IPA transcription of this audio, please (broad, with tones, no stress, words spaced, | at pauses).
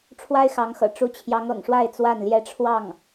ʈ͡ʂʰwa˥ɪ̯xɑ˧˥ŋxɤ̰˨˩ ʈ͡ʂu˧˥t͡ɕʰjɑ˧˥ŋɤ̰˨˩ŋʂwa˥˧ɪ̯ t͡swa˥˩nljɛ˥ ʈ͡ʂʰwɑ˥˩ŋ